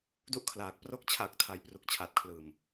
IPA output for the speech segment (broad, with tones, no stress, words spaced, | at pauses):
du˦˥ʔkʰlaː˨˩k̚pro˦˥k̚ t͡ɕʰa˨˩k̚tʰa˩˦j pru˨˩k̚t͡ɕʰaː˨˩t̚kʰlɯː˨˩m